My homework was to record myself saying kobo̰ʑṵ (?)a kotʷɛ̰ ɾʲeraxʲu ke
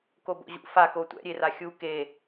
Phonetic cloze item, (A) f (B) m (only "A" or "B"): A